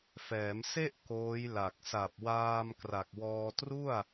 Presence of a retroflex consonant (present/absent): absent